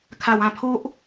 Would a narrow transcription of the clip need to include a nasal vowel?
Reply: yes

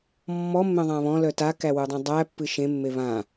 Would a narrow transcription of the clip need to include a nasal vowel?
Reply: yes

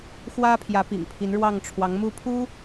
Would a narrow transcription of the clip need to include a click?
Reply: no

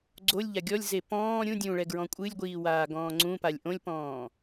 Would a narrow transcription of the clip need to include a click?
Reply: yes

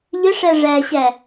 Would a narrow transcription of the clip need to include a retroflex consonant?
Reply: yes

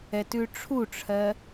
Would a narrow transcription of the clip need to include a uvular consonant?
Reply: no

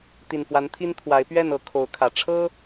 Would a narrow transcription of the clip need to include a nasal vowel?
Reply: no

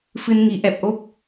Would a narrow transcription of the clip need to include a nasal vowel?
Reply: no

